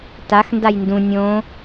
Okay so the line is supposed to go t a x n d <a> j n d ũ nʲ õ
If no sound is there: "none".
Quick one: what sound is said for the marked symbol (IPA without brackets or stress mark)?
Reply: a